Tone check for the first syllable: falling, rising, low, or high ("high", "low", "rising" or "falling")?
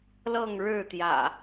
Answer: falling